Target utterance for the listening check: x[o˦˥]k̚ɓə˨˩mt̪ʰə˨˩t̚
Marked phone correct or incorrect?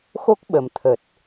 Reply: correct